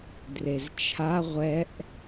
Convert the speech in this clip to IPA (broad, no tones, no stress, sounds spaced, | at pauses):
d r e z t͡ʃʰ a ʁʷ ɛ ʔ